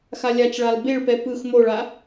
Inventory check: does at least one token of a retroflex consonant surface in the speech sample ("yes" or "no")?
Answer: yes